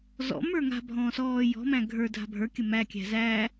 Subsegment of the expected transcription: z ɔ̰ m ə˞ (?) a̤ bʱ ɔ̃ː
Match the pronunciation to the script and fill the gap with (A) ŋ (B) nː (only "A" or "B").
A